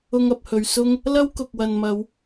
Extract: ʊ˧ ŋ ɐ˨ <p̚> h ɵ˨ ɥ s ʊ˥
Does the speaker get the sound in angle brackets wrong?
no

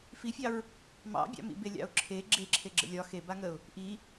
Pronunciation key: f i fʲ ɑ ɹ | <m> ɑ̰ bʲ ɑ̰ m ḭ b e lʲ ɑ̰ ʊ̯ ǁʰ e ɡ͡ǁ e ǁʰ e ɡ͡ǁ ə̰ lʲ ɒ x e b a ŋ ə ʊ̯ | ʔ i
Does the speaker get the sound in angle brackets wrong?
no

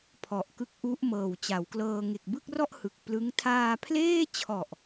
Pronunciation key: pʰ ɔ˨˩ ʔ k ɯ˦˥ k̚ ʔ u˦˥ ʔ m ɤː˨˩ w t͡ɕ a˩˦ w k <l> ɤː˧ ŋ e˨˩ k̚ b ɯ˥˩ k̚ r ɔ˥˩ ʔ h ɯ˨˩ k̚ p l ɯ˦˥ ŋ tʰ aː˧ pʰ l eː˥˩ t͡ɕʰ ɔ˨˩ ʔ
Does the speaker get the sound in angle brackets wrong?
no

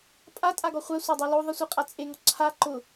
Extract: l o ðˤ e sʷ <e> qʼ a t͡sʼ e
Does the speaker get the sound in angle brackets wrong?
no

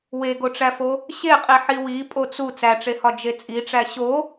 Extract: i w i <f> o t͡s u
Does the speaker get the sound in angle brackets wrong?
yes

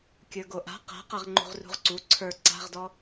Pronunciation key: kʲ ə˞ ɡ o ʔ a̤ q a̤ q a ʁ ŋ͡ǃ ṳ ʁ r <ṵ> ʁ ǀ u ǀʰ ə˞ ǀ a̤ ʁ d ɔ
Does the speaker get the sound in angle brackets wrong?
yes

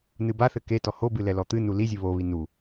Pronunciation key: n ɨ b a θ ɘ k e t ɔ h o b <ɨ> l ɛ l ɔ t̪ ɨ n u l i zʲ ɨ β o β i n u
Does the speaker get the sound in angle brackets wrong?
no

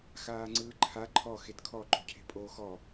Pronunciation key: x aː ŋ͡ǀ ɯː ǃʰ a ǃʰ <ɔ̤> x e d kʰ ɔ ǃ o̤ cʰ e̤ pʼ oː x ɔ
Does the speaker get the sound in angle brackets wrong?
yes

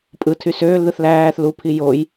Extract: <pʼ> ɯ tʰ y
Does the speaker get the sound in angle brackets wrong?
no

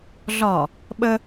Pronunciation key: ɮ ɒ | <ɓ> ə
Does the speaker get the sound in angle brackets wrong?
no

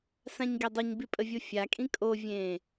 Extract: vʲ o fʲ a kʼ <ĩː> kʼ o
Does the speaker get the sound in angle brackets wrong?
yes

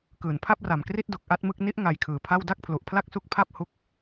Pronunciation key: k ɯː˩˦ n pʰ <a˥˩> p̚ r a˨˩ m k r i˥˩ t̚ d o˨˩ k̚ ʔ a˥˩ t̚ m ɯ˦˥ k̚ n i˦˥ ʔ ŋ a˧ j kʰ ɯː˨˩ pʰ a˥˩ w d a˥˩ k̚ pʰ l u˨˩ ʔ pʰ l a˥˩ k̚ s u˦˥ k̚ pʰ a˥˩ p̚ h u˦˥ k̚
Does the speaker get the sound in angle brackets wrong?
no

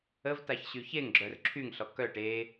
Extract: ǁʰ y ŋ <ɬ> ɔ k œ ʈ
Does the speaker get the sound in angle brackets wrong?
no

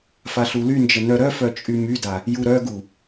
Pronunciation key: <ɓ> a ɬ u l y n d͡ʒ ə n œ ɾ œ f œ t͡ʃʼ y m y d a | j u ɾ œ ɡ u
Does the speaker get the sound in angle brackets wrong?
yes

